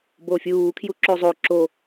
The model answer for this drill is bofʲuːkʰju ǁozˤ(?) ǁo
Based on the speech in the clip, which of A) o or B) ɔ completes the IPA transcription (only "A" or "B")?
A